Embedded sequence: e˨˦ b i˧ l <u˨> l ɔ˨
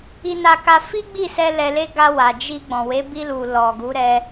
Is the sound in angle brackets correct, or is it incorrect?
correct